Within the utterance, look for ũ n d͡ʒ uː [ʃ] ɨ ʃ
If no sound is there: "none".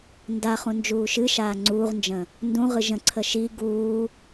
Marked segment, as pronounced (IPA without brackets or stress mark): ʃ